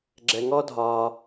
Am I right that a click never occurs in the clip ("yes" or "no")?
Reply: no